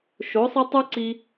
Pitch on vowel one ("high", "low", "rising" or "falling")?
rising